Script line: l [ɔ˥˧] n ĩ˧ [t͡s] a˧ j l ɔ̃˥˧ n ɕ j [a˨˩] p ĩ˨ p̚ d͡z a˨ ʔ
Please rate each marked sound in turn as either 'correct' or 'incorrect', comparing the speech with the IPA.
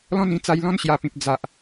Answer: incorrect: ɔ̃˥˧, correct, correct

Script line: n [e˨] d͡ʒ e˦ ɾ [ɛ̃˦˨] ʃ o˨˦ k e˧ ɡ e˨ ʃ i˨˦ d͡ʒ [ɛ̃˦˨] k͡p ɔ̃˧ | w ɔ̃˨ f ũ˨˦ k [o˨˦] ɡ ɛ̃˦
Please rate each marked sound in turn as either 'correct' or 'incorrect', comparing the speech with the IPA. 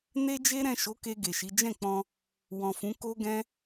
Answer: incorrect: e˦, correct, correct, incorrect: o˦

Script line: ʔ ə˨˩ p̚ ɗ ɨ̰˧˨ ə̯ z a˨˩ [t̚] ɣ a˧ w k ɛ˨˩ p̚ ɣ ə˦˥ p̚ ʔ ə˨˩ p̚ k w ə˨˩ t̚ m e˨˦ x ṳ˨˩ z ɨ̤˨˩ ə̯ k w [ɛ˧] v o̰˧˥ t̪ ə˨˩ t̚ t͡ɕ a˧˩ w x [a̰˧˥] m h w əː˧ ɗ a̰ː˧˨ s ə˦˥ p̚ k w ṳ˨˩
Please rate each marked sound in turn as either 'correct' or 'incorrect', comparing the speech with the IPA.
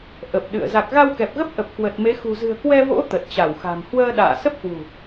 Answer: incorrect: k̚, correct, incorrect: a̤˨˩

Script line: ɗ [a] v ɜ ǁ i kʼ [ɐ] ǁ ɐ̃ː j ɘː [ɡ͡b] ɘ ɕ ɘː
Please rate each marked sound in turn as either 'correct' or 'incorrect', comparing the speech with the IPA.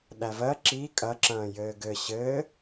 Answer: incorrect: æ, correct, incorrect: ɡ

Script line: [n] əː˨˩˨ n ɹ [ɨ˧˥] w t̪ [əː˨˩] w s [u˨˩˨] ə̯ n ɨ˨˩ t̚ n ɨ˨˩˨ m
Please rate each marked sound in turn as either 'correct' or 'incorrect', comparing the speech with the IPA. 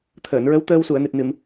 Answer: incorrect: t̪ʰ, incorrect: ə˧˥, incorrect: əː˧, correct

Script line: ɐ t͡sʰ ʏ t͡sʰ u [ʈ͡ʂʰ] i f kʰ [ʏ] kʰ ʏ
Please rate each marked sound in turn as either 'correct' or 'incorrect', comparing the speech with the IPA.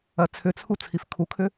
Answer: incorrect: t͡sʰ, incorrect: u

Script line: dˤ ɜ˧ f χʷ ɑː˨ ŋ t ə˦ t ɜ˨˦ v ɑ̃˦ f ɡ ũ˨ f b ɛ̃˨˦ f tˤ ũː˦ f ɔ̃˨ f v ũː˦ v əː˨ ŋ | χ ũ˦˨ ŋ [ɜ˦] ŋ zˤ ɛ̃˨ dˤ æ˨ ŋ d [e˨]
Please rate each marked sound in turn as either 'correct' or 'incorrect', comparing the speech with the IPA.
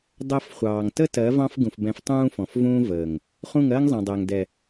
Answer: correct, incorrect: ɛ˨

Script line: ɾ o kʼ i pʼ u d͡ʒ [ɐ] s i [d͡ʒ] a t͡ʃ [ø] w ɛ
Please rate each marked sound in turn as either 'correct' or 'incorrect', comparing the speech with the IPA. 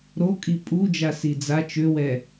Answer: incorrect: a, incorrect: d͡z, correct

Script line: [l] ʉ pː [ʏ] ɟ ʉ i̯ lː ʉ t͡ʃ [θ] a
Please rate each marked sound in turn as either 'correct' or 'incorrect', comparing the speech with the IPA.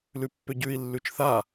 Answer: correct, correct, correct

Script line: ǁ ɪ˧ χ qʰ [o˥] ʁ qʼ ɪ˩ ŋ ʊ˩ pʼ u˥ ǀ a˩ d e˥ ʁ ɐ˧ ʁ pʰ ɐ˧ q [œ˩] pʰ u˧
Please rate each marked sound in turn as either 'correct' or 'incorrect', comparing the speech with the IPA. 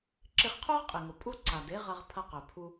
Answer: correct, correct

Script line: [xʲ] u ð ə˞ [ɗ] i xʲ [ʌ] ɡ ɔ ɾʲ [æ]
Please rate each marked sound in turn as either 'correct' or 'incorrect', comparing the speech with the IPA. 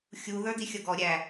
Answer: correct, incorrect: d, correct, correct

